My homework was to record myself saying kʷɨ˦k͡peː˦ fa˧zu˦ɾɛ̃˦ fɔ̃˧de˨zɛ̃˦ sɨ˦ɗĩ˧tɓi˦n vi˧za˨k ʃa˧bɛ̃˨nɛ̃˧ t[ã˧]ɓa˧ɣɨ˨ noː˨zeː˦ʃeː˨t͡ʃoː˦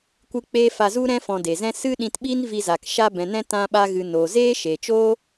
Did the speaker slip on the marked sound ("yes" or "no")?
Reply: no